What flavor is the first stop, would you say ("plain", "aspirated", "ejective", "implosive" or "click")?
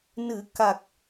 plain